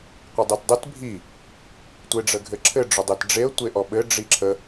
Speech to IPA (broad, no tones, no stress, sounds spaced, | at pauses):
qʷ ə dˤ e t dˤ ə t bʱ i | tʷ e ɖ͡ʐ ə ɡʱ ɘ ǁʰ ɘ ɖ͡ʐ ʊ dˤ e t ɖ͡ʐ e ə̯ tʷ e ʔ ɔ ɓ ɘ ɖ͡ʐ i ǁʰ ə